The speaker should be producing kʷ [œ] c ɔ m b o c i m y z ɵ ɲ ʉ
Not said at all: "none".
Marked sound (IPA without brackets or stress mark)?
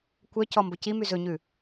œ